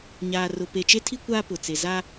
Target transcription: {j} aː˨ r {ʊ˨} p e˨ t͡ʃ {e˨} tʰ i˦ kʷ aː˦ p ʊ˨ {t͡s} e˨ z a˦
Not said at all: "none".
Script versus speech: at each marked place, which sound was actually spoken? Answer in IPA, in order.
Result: ɲ, ʊ˨, e˦, t͡s

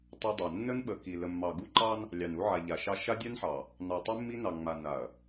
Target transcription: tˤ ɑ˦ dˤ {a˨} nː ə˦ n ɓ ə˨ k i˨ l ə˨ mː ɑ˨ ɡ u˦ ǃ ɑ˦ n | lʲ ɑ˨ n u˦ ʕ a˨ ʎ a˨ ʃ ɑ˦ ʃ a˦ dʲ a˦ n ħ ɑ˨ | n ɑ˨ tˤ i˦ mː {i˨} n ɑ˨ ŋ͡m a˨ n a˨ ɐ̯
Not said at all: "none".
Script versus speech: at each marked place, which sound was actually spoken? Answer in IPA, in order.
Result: a˨, i˦

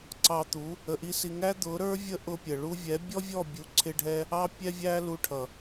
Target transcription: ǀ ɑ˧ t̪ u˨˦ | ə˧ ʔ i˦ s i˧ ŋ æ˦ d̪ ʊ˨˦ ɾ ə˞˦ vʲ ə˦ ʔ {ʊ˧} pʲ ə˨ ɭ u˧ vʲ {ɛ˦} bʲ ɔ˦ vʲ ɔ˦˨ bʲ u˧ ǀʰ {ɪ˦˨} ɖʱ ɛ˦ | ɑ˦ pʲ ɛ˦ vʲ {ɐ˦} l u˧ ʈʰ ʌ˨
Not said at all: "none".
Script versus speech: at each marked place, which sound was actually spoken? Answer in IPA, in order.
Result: ʊ˧, ɛ˨˦, ɪ˦, æ˦

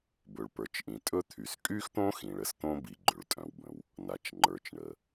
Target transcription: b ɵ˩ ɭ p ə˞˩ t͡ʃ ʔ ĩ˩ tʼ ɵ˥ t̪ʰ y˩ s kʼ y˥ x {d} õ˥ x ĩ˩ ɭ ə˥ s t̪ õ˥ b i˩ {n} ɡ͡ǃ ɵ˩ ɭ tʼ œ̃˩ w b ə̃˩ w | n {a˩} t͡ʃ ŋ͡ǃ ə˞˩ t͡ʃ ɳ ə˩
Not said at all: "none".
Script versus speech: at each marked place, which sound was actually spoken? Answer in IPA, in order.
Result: t̪, none, a˩

